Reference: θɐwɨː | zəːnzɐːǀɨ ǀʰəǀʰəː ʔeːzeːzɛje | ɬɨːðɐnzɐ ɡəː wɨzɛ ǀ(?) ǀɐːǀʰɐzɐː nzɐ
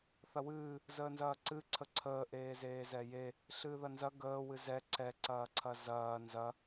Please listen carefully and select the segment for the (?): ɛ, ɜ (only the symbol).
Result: ɛ